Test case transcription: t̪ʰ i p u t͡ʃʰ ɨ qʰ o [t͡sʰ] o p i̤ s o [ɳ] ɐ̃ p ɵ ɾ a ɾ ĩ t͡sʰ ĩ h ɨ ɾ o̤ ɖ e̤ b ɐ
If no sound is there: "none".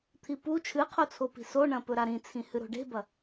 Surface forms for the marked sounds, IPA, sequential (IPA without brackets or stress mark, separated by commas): t͡sʰ, ɳ